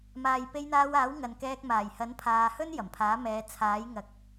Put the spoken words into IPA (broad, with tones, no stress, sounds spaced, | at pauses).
m aː˨ j p e˧ j n̪ aː˧ w aː˨˥ w ŋ ɐ˨˧ n k ɛː˧ k̚ m aː˨˩ j h ɐ˨˥ n pʰ aː˨ h ɵ˥ n j ɐ˨˩ m pʰ aː˨˥ m ɛː˨˧ t͡sʰ aː˨˥ j ŋ ɐ˨ k̚